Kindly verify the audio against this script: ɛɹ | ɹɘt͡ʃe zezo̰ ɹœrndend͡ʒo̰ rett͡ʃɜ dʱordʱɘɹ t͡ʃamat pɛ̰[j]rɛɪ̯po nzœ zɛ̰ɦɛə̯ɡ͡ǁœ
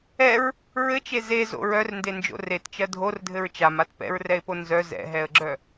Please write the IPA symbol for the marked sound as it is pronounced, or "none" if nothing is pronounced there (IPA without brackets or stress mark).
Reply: ɹ